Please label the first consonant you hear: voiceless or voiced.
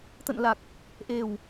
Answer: voiceless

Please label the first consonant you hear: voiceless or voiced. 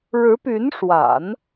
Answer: voiced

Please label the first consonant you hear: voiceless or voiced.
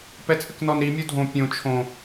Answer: voiceless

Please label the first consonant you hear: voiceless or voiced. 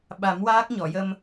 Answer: voiced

